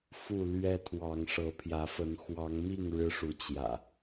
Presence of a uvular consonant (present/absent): absent